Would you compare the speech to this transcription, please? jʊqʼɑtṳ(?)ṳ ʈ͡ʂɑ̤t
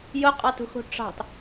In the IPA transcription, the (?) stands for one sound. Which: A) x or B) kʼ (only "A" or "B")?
A